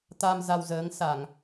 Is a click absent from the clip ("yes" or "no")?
yes